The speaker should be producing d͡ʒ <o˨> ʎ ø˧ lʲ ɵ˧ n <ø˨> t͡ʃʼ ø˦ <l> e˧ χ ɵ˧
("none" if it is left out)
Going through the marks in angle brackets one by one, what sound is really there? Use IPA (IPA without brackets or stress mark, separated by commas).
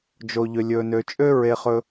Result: o˧, ø˧, ɹ